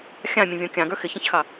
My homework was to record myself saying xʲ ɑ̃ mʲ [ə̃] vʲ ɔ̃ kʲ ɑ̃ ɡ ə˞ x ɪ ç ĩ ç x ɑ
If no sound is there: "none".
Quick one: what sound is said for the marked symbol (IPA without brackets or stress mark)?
ə̃